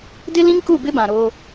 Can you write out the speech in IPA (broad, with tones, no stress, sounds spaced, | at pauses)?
d ɪ˦ l ĩ˦ ŋ k u˦˨ b ɪ˦ b ã˨ ɾ oː˦